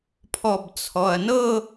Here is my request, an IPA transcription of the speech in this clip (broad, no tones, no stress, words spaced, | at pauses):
pʰɔbt͡sʰɔɐ̯nɤ